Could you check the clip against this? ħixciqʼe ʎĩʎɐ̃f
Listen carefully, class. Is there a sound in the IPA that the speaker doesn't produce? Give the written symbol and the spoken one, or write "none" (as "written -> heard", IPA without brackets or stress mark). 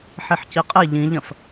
x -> ħ